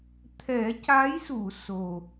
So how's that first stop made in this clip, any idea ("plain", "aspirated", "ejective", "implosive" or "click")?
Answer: aspirated